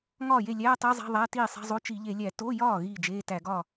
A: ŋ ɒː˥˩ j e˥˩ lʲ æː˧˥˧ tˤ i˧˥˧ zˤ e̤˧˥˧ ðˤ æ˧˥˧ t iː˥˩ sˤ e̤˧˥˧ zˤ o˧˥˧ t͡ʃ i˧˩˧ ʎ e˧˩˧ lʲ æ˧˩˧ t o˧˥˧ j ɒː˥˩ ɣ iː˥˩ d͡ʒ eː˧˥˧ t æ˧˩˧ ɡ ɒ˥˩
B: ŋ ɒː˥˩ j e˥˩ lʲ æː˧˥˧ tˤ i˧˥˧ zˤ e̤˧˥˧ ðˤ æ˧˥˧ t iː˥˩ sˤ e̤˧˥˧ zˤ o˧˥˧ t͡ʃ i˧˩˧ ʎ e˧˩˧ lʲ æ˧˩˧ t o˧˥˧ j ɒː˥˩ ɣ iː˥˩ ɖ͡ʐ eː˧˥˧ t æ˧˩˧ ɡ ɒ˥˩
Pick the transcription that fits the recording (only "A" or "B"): A